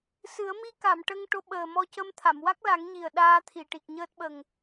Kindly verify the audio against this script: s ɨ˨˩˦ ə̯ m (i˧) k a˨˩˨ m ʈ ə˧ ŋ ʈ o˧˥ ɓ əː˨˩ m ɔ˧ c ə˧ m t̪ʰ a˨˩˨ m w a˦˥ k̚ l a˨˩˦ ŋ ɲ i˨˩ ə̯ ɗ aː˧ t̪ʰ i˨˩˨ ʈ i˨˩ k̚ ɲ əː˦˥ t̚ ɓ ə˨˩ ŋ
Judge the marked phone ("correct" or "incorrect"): correct